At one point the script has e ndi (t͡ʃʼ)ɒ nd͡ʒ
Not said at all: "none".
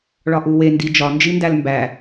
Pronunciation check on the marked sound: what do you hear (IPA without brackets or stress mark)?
d͡ʒ